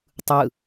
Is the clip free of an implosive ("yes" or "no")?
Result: yes